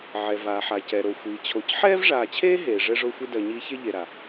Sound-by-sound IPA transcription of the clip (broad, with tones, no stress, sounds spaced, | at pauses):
ʕ ɛ˩ v aː˩ ħ a˩ c ɛ˩ ɾ o˩ xʷ iː˩ t͡ɕʰ o˨ c ħ ɛː˥ v ʐ aː˨ t͡ɕʰ eː˥ ɦ eː˩ ʐ ɛ˦ ʐ o˦ xʷ i˦ d ɜ˨ ɲ iː˦ ç e˥ ʎ e˨ ɾ a˩